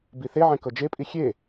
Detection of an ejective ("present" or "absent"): present